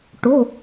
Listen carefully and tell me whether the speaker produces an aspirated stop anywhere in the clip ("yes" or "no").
no